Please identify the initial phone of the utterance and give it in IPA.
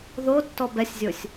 ð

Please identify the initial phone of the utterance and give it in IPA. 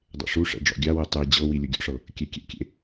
dˤ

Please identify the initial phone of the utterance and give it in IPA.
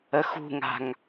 ə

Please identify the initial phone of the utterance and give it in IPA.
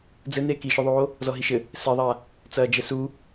d͡z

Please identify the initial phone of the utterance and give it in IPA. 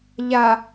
ʎ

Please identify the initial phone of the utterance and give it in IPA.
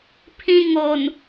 pʰ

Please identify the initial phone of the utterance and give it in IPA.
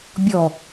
bʲ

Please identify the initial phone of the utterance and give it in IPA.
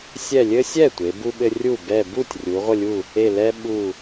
sʲ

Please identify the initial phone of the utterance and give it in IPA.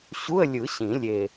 ɕ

